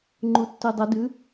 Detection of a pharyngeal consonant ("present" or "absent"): absent